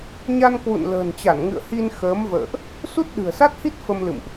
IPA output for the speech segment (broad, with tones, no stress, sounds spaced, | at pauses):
ɲ a˧ n k w ṵ˧˨ n l ə̤ː˨˩ n t͡ɕ a˧˩ n ŋ ɨ̰˧˨ ə̯ h i˧ n x əː˨˦ m v ə̰ː˧˨ ʔ | s u˦˥ t̚ ɗ ɨ̤˨˩ ə̯ s a˦˥ t̚ h i˦˥ t̚ f ə˧ m l ɨ̰˧˨ m ʔ